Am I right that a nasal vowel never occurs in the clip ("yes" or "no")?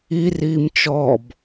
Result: yes